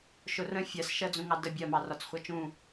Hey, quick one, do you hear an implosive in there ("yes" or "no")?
no